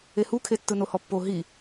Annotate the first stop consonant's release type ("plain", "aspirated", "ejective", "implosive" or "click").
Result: aspirated